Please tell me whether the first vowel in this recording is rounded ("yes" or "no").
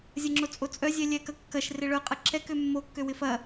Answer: no